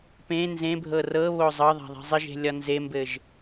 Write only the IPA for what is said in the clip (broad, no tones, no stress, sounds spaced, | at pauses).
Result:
p ẽ n z ẽ bʱ ɤ r ɤ β o zˤ ɤ ðˤ a̤ ðˤ e̤ zˤ ɪ ʒ e̤ lʲ ɒ n z e m b ɘ ʒ